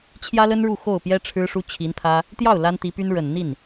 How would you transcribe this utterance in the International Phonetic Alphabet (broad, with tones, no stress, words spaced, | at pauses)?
t͡ɕʰjä˥lə˥n ɻu˥˧xo˥˩ʊ̯pjɛ˥ ʈ͡ʂʰɻ̩˥ʂu˥t͡ɕʰi˧˥npʰä˥ | t̪jɑ˥˩ʊ̯ la˥nt̪i˧˥py˥n ɻə˨˩n n̪i˥˩n